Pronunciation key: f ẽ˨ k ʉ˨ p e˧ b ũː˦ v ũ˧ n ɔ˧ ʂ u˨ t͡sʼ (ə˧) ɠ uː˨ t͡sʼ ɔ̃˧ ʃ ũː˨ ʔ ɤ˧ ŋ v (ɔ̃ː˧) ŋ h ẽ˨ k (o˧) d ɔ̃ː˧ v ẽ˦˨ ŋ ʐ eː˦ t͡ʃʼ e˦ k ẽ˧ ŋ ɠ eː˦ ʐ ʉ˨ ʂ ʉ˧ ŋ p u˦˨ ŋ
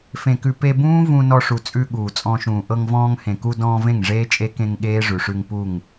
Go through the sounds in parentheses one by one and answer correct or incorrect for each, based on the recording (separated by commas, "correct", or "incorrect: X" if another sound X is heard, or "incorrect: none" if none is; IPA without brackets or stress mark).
incorrect: ʉ˧, correct, incorrect: u˧